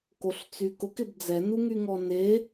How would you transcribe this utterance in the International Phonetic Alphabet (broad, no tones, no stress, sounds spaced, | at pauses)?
k o ɬ t͡s y k ʊ k ɪ b d͡z ɛ n u ŋ y ŋ ɔ n e